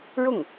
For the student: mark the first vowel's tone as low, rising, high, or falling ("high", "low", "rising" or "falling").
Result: falling